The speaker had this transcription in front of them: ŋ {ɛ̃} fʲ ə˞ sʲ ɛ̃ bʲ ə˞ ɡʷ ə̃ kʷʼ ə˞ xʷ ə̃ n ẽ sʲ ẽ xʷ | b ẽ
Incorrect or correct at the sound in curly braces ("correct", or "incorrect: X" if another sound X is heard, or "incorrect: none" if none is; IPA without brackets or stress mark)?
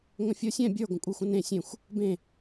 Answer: incorrect: ə̃